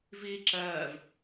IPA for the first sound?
v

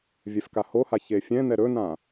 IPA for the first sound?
vʲ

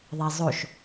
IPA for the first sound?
ðˤ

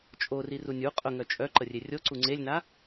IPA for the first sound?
t͡ʃʼ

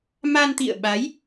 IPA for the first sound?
m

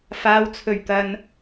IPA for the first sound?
f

